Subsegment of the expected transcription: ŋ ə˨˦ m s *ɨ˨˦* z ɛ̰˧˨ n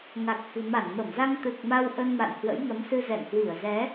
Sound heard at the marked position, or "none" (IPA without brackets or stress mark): ɨ˧